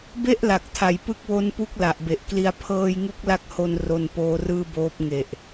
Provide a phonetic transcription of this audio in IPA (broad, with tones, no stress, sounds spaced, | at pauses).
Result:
b e˥˩ ʔ l a˨˩ k̚ tʰ a˩˦ j p ɯ˦˥ k̚ w o˦˥ n p u˦˥ k̚ l a˨˩ ʔ b e˨˩ ʔ k l i˧ a̯ pʰ ɤː˧ j ŋ u˦˥ k̚ l a˦˥ k̚ h o˧ n r o˧ n p oː˦˥ r ɯː˥˩ b oː˦˥ p̚ ŋ e˨˩ ʔ